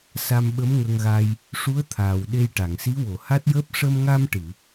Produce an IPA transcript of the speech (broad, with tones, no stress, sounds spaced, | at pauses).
s a˧ m ɓ ə˧˥ m ŋ ə˧ ŋ ɣ a˧ j | ʂ u˧˥ ə̯ t̪ʰ aː˨˩ w ɗ e˧ j ʈ a˨˩˨ ŋ s i˧˥ w o˨˩˨ h a˦˥ t̚ j əː˦˥ p̚ ʂ ə˧ m ŋ a˧ m ʈ ɨ˨˩˨